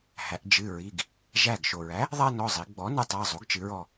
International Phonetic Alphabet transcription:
hæ˩˧ʔd͡ʒɨ˩˧˩ɹi˩˧˩ɡ | ʒæ˧˩ɡʃo˩ɹæ˩˥ | ðˤæ˦nɔ˩˧˩zˤi˩˧ɡ͡bɔ˩˥ nɨ˩˧˩tˤæ˩˧˩ zˤo˩˥ɡt͡ʃɨ˩˧ɹɔ˧˩

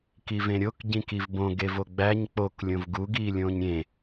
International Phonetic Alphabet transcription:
kivẽɾʲok ɟĩkivbõ ɡevoɡ͡bæɲ k͡pok lʲõvɡu ɡiːlʲõːɲɾʲẽ

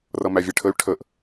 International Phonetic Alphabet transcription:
rʌmævʲeʈʰəy̯ ʈʰəʔ

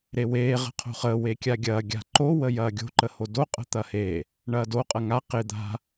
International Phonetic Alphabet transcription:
ɾeweː ʁə̤qʰo̤χəː wekʲaɡʲɐː ɡʲa̤ǃo wəjɐːɡʲo̤ ǃəhodo qʼə̤t̪ɐhe | ɳɐːdo qʼɐŋa qɪ d̪a̤

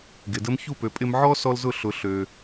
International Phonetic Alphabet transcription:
ɡɪ˨də˦m çu˦˨pø˨ pʼɪ˦m ʕɔ˦sɔ˧lzʊ˦˨ ɬʊ˧ ɬø˧

